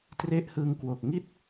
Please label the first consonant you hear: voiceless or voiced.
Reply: voiceless